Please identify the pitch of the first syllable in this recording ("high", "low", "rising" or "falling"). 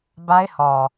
high